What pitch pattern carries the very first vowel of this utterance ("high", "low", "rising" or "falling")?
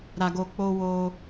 low